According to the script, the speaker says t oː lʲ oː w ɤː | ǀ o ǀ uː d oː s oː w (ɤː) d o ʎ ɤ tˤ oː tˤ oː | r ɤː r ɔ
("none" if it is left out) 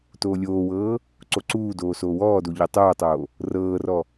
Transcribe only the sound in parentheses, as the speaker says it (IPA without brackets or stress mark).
ɔː